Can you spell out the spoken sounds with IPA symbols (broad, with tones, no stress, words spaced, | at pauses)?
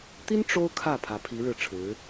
t̪i˥n ʈ͡ʂo˥ʊ̯ kʰä˥˩ pʰä˧˥pʰi˧˥ɻɻ̩˥˩ʈ͡ʂʰɻ̩˧˥